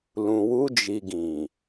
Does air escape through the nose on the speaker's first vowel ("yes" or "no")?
yes